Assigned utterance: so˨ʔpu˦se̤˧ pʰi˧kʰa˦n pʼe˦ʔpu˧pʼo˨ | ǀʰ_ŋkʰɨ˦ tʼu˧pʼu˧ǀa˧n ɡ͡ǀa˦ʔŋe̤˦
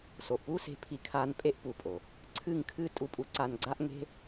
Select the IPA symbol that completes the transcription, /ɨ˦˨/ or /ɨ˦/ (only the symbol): ɨ˦˨